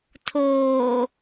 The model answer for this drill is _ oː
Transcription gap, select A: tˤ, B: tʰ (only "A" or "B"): B